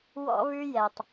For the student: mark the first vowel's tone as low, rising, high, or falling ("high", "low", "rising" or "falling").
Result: high